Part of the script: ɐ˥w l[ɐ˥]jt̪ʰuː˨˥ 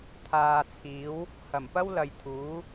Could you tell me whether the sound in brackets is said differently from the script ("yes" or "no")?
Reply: yes